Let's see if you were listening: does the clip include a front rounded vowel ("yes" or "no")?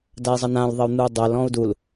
no